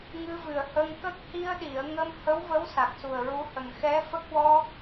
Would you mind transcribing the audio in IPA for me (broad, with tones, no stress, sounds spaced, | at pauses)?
ŋ ɨ˧ v ɨ˨˩ ə̯ h ə˧ ŋ k ə˦˥ k̚ h i˧ ə̯ ɗ i˨˩˨ ə̯ ŋ ə˧ m h ə˧˥ w v ə˧˥ w s a˨˩ k̚ s u˨˩ ə̯ ɹ u˧˥ h ə˨˩ ŋ x ɛ˧˥ f ə˦˥ k̚ w ɔ˧